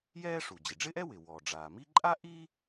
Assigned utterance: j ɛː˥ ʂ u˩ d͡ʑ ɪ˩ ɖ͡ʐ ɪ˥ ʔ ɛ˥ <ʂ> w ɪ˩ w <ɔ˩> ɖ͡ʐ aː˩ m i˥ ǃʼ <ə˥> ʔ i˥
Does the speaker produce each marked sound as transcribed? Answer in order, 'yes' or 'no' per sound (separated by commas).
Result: no, yes, no